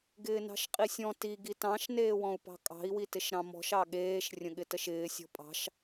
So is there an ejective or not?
yes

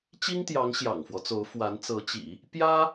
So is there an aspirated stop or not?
no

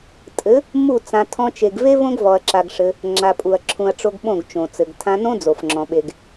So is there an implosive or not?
yes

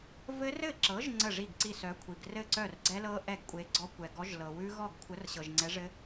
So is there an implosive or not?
no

